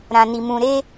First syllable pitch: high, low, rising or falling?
low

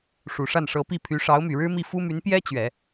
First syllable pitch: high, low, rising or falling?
low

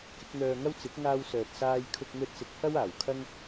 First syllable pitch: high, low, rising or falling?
rising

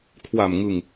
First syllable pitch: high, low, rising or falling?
low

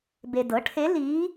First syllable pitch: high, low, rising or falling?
low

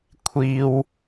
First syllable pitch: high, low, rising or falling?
low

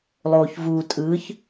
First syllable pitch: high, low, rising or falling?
low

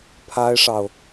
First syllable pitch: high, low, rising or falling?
high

